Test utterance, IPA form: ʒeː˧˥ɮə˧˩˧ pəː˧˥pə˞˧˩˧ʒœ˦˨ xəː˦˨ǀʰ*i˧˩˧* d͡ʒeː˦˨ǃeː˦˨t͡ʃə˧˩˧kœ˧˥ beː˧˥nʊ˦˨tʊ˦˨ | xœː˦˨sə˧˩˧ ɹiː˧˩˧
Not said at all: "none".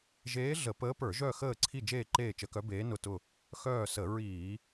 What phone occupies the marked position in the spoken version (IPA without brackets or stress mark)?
i˦˨